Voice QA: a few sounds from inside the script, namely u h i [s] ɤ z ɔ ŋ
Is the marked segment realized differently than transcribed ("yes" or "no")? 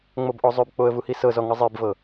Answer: no